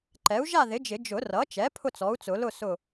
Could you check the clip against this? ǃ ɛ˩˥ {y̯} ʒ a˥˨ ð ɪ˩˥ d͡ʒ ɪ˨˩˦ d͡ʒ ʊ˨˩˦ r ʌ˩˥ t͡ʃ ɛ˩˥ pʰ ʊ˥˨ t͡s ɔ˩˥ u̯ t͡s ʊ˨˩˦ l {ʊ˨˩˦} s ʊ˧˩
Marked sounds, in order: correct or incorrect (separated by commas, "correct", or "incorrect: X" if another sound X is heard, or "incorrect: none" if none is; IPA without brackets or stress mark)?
incorrect: u̯, incorrect: ʊ˥˨